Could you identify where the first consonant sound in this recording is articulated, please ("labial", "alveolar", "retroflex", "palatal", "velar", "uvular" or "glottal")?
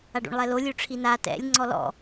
retroflex